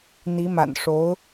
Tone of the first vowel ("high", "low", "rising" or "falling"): rising